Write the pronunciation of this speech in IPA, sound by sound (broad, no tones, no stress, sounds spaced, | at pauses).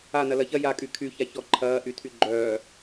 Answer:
a n ɐ l ɐ ç ɐ j a kʼ y kʰ y ç a ç ɔ ǃʰ ɐː ʔ y tʰ y ɡ͡ǃ œː